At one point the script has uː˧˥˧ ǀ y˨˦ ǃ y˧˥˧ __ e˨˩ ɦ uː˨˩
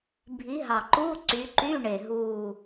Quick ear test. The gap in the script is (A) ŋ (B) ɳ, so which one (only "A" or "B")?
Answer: B